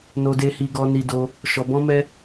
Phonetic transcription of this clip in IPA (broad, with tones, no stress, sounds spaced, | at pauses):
n o˦ d e˦ h i˦ ɡ ɔ˦ n i˦ d o˦ | ʃ ɔ˧ b ɔ̃˦ m ɛ˦